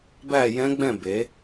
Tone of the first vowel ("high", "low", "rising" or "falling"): falling